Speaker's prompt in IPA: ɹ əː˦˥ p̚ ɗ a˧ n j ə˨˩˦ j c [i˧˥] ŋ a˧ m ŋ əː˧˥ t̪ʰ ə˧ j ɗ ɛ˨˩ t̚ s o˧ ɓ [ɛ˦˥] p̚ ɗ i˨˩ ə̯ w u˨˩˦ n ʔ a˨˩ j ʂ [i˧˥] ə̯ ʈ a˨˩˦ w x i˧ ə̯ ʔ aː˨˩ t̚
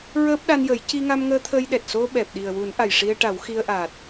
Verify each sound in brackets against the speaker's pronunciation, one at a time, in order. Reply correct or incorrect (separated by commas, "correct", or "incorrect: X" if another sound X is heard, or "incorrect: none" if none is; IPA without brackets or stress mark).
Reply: incorrect: i˧, incorrect: ɛ˨˩, incorrect: i˧